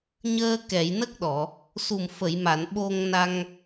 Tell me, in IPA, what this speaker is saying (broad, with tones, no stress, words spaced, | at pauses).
ɲəː˧ kɛ˨˩˨jnə˦˥k̚ɗɔ˨˩˨ | su˨˩mfə˨˩˨jma˨˩˨n ɓo˧ŋna˧ŋ